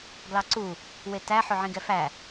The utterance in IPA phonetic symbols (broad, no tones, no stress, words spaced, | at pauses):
ɡlɑǀu | wetæ ħɵʕĩɡɛfæ